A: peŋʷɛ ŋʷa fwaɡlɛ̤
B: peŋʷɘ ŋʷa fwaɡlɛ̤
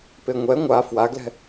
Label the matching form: A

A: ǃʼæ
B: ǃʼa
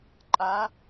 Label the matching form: B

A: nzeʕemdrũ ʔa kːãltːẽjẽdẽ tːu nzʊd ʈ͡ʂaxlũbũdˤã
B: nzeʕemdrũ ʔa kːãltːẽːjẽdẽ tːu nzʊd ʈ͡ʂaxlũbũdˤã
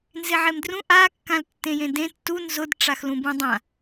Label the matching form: A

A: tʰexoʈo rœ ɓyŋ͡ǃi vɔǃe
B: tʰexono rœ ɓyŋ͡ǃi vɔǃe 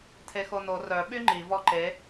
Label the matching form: B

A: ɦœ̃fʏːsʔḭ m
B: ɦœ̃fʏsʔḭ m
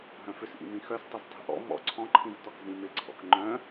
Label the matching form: B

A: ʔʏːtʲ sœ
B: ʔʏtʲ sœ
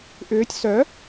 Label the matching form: A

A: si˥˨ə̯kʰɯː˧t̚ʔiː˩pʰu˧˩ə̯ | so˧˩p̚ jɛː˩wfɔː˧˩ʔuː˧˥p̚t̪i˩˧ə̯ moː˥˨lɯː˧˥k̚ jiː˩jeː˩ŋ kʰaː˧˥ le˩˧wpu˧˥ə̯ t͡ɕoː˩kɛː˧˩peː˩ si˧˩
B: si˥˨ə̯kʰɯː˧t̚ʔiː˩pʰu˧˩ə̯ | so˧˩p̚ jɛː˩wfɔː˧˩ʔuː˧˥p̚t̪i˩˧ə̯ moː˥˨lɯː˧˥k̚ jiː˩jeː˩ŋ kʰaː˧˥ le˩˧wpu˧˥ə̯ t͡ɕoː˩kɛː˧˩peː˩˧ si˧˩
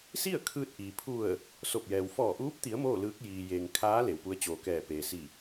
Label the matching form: A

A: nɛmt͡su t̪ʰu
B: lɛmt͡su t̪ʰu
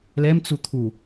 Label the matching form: B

